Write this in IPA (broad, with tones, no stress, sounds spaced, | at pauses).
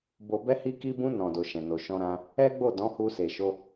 b o˧ b ɛ˧ h i˧ k i˧ b ũ˧ n ɔ̃˨ d o˨ ʃ ɛ̃˨ n o˨ ʃ ɔ̃˧ ɾ ã˧ | ɛ˦ ɡ͡b o˦˨ d ɔ̃˨˦ h u˧ s e˨ ʃ o˧